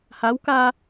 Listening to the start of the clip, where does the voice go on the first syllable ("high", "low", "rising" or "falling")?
rising